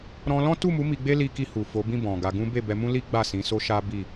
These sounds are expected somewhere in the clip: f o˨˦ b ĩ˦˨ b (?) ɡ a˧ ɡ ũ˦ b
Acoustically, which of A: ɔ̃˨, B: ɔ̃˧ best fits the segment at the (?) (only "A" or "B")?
A